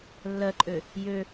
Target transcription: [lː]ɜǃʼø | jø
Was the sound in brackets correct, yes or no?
yes